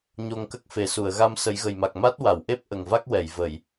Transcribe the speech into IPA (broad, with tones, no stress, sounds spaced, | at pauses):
ɲ o˧ ŋ k ə˦˥ k̚ f e˨˩ s u˨˩˨ ə̯ ɣ a˧ m s ə˨˩˦ j ɣ ə˨˩ j m a˨˩ k̚ m a˦˥ t̚ w a˨˩˨ w ʔ e˦˥ p̚ ʔ ə˨˩ ŋ v a˦˥ k̚ w ɛ˨˩˨ j v ə˨˩˨ j